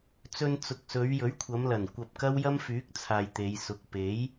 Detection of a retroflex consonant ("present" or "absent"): absent